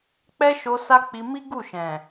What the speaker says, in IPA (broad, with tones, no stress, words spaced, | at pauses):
k͡pɛ˦ʃo˧ sa˦ k͡pi˧mi˦ ɡu˦˨ʃɛ̃˨